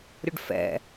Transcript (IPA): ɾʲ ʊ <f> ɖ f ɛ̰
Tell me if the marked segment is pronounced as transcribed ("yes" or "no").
no